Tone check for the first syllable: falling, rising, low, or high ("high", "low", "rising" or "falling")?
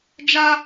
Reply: high